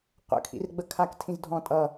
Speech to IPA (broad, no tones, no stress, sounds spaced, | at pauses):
qʷ ə̰ kʰ ḭ r ɡ͡b ə kʰ a k tʰ ĩ z dʱ ɔ̃ tʼ ʌ